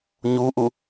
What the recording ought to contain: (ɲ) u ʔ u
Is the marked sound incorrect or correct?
correct